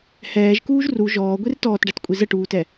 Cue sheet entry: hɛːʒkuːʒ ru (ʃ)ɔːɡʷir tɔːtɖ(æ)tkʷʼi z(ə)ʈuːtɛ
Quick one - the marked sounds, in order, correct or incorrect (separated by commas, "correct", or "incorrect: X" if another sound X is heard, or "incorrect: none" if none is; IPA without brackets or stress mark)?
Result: incorrect: ʒ, correct, correct